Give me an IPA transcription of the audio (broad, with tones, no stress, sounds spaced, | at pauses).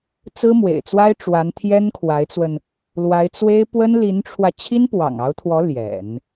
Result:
t͡s ɹ̩˥ m w ḛ˨˩ ɪ̯ t͡s w a˥ ɪ̯ ʈ͡ʂ w a˧˥ n t̪ʰ j ɛ˥ n kʰ w a˧˥ ɪ̯ t͡s w ə˧ n | l w a˧˥ ɪ̯ t͡s w e˥ ɪ̯ p w ə˥ n l i˧˥ n ʈ͡ʂʰ w ä˧ t͡ɕʰ i˥ n p w ɑ̰˨˩ ŋ ɑ˧˥ ʊ̯ t̪ʰ w ɔ˧˥ l j ɛ̰˨˩˦ n